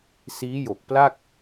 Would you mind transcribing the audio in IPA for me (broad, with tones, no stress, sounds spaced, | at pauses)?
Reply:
s iː˦˥ j o˨˩ k̚ p l a˥˩ k̚